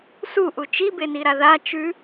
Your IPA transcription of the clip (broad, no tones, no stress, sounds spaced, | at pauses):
s u ʔ u t͡ʃ i b e n i ɾ a ð a t͡ʃ ʉ